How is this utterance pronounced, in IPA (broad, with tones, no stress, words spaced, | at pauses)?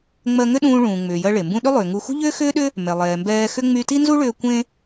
ŋ͡mɜ˧ŋʏ˥ɗũː˧ ɭũː˩ ŋ͡mʏː˩jɜ˧ ɭe˩mbũ˧ ɗʏ˥lˠʏː˩ ŋu˧ xṳ˥ʎʏː˥xʏː˥ɗʏ˥ | mɛ˩lˠɛː˩mbɛː˧xʏ˥ ŋ͡my˧ti˥nzu˥ɭʏː˧ kʷẽ˥